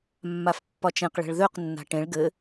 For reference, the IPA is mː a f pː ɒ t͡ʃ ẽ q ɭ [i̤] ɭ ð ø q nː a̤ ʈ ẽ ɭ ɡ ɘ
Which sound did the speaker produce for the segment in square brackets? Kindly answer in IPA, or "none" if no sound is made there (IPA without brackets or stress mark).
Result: e̤